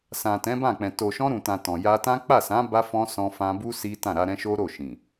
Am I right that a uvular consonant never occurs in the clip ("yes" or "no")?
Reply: yes